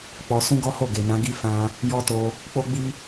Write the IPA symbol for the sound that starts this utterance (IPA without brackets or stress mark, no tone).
k͡p